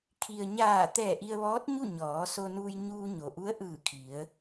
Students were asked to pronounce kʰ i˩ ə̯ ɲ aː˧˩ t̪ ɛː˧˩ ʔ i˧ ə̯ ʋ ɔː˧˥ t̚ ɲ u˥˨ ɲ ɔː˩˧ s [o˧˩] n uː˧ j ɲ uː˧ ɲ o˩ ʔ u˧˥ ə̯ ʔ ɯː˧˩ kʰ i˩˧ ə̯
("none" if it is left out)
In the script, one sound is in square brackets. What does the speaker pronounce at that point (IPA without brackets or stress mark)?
o˧